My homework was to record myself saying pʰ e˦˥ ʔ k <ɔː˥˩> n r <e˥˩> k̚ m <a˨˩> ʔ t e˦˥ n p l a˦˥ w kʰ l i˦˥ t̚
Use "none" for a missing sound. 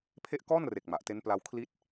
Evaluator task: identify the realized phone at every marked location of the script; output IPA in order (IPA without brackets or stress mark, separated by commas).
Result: ɔː˥˩, e˨˩, a˨˩